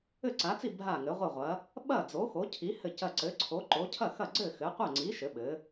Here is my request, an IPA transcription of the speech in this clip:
ɘ˥˨ ǀ a˨˥ t͡s i˥˨ bʱ a˥˨ ŋ ɘ˨˥ ʁʷ ɘ˥˨ ʁʷ ɐ˨˥ | ɓ ɐ˥˨ d͡z o˨˥ x o˨˥ cʰ i˨˥ h ɘ˥˨ c ɐ˥˨ ǀ ɘ˨˥ ǀʰ o˨˥ ǃ o˨˥ cʰ ɐ˥˨ x ɐ˥˨ ɡ͡ǀ ɘ˥˨ x ɘ˨˥ qʷ ɐ˥˨ ŋ͡ǀ i˨˥ ʃ ɘ˨˥ ɓ ɘ˨˥

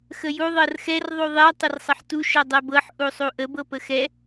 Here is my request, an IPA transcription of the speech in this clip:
x ə j u ðˤ ɤ r x ɛ r ðˤ u ðˤ ɛ tˤ ə r sˤ ə ħ t u ʃ ɤ dˤ ɛ b ɤ ħ ʔ u sˤ u ʔ ə b ɤ p ə x ɛ

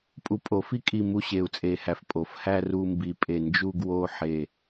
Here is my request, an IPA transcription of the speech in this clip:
pʼ u˧˩ pʼ o˨˩˦ f i˥˧ kʼ i˧˩ m u˥˧ ɕ e˨˩˦ u̯ t͡sʼ e˨˩˦ h æ˩ f pʼ o˩ f h æ˥˧ r u˥˧ m b i˧˩ pʼ e˧˩ n d͡ʒ u˥˧ ɡ w o˥˧ ħ e˧˩

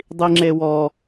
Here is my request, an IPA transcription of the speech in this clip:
dˤ i ŋ͡ǁ e w ɔ

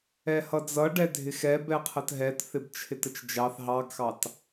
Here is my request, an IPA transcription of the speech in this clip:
ɛ h ʌ d͡z ʌ ɖ ɛ dʱ ɪ x ɛ b ɛ qʰ ə t ɦ ɛ t θ ɪ b t͡ʃʰ ɪ t ə t͡ʃ d͡ʒ ɑ θ ɦ ɑ ɡ x ɑ t

